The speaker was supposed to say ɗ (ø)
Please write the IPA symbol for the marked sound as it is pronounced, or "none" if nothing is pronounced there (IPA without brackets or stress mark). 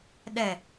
ɛ